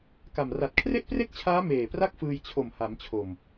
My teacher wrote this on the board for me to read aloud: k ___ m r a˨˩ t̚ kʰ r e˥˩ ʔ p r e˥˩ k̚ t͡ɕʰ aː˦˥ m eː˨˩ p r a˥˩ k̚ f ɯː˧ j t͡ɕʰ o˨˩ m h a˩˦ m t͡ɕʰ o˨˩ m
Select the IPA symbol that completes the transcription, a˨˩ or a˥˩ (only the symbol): a˨˩